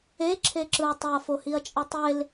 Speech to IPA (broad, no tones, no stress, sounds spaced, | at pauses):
e ǁʰ e ǁ ɯ ɐ̯ tˤ i ɐ̯ f o h i ɐ̯ t͡ʃʼ ɯ tˤ e l